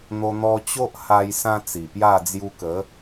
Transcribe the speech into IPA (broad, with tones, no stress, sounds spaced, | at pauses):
n̪ o˧ n̪ ɔ˧ t͡ɕ o˦ ʔ h a˧ j s ã˦ t͡s i˨˩ p j a˥˧ d͡z j u˧ k ə˨˦